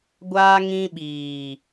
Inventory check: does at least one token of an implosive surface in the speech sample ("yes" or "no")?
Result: yes